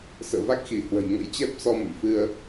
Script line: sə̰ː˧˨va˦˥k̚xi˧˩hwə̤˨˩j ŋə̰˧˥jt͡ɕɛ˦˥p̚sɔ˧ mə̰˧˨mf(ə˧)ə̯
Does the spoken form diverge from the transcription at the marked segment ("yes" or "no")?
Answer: yes